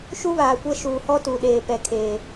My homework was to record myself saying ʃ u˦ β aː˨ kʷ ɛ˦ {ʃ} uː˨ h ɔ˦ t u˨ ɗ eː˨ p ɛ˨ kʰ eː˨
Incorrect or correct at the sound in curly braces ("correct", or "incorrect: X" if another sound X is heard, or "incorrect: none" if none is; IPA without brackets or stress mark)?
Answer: correct